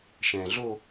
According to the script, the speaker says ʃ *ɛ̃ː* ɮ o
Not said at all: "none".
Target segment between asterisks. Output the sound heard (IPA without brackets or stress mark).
ɛ̃ː